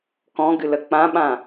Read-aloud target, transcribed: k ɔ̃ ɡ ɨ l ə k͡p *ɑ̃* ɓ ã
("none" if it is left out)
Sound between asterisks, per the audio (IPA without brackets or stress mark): ã